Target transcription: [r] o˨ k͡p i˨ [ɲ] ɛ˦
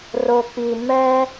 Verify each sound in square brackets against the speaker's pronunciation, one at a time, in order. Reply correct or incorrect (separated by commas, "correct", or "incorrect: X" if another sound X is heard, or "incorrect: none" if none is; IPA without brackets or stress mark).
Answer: correct, incorrect: m